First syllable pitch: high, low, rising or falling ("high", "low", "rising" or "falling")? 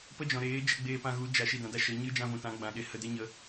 high